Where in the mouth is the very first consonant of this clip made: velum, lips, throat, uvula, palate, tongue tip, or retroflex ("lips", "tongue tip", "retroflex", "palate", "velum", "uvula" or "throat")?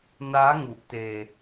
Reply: tongue tip